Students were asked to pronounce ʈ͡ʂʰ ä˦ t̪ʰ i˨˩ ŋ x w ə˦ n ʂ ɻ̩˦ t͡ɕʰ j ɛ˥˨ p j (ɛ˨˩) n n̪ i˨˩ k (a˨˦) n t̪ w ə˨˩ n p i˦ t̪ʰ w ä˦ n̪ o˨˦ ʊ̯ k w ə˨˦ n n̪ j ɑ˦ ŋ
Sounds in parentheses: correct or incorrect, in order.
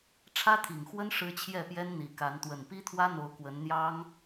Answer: incorrect: ɛ˦, correct

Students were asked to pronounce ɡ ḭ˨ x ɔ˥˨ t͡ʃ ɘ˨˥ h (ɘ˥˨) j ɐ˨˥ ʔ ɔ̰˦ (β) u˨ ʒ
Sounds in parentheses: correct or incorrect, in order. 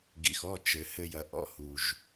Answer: incorrect: ɘ˦, incorrect: h

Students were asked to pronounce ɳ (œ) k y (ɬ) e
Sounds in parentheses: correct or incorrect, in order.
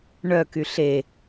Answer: correct, correct

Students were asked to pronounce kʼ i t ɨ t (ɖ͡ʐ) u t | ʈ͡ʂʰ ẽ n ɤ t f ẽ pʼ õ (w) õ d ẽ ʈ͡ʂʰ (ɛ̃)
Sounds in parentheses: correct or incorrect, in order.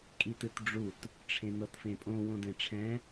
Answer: correct, correct, correct

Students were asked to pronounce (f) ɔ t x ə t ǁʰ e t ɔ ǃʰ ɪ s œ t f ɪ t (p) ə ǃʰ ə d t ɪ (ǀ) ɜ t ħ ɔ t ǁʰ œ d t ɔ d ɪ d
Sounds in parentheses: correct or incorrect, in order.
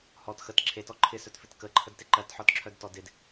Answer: incorrect: h, incorrect: k, incorrect: ǃ

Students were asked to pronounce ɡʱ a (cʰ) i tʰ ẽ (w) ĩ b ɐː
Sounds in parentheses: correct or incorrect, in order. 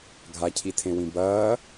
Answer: correct, correct

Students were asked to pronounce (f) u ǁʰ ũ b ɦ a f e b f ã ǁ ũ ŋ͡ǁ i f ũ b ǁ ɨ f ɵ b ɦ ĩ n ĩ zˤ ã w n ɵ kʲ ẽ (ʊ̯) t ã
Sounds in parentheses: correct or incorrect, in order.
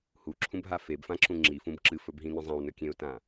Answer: incorrect: h, correct

